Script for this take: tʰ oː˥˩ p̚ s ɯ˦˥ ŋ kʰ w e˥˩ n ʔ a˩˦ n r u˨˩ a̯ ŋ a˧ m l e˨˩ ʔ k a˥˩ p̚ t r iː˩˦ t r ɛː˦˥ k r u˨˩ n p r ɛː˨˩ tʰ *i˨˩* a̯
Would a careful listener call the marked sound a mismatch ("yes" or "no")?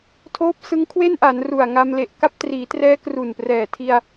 yes